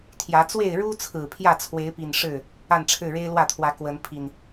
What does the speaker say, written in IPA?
t̪ʰ j ä˨˦ t͡s w e˥˨ ɪ̯ ɻ u˦ t͡sʰ ɹ̩˨˩ pʰ j ä˥˨ t͡sʰ w e˨˦ ɪ̯ p i˨˩ n ʂ ɻ̩˥˨ | a˥˨ n ʈ͡ʂʰ ɻ̩˥˨ ɻ e˦ ɪ̯ l w ä˥˨ t̪ʰ w ä˨˦ k w ə˨˦ n pʰ i˨˩ n

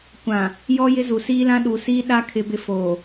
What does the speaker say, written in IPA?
kʷ ã˨ | j ɔ˦ j ɪ˦ z u˨ s iː˦ l ã˦ ɗ u˨ s iː˦ ɗ a˦ kʰ ɪ˦ b ɪ˦ f oː˨

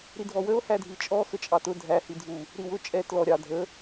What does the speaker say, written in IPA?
ɾ i dʱ ɔ w ə o̯ h æ dʱ i t͡ʃʼ ɔ x ə t͡ʃʼ ɑ t ʊ dʱ æ h i dʱ u | ɾ i w ʊ t͡ʃʼ ɛ t l ɔ ɾʲ ɑ dʱ ə

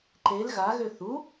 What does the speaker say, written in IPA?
ǃ e l ɣ a ɣ ø θ u

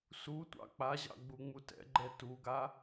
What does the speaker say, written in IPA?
s u tʷ ɑ̰ k͡p a ʑ ɑ̰ ɡ͡b u ŋ͡m u t ɛ̰ ɡ͡ǃ ɛ t u ɡ a

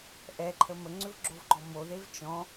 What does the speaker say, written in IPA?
ʔ ɛ ǃʰ ə m ə ŋ͡ǀ ʏ v ɡ͡ǁ o v ɡ͡ǃ ɔ m o ð e v t͡ʃ ɔ̃

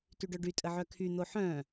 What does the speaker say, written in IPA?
t y ɖ œ ɖ y tʼ ə ʕ œ kʰ y n̪ o ħ œ̃

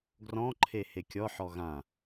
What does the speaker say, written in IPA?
ɡ r ɔ̃ ǃʰ e h e kʲ ɔ ħ ɔ ɣ ã

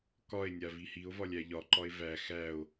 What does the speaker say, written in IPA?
k ɒ e̯ nʲ a v i h i o̯ v ɒ lʲ æ ʎ ɒ ǃ ɒ e̯ v æ x æ o̯

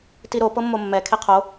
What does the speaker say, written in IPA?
t i ɾ o p ɤ mː o mː ɛ kʰ e qʰ o

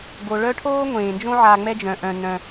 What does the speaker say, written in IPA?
ɡ o˩ ɭ œ˥ ʈʰ oː˥ ŋʷ ẽː˩ n d͡ʒ õ˦ ʕ a˨ ŋ͡m ɛ˦ d͡ʒ œ̃˩ ʔ œ̃˩ n œ̃˩

